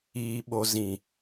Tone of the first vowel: low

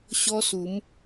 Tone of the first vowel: high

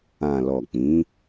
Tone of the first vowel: low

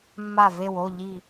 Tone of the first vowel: low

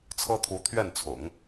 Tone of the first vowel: high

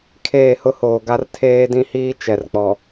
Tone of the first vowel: falling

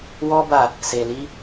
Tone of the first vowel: high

